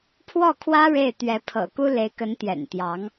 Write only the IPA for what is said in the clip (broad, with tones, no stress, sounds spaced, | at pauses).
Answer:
pʰ w ɔ˥˩ kʰ w ä˥ ɻ e˥˩ ɪ̯ t̪ ɥ ɛ˧˥ pʰ ɤ̰˨˩ k u˥ l e˧˥ ɪ̯ k ə˧˥ n t̪ j ɛ̰˨˩ n t̪ j ɑ˧˥ ŋ